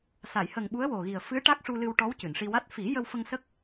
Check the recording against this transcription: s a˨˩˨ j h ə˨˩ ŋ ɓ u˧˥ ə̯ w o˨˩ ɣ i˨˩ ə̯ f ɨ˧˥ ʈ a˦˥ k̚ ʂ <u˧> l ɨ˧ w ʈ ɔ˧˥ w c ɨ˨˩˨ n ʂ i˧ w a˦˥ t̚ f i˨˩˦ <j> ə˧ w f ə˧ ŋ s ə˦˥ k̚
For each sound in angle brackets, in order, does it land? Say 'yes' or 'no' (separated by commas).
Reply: yes, yes